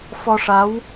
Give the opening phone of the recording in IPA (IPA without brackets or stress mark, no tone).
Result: f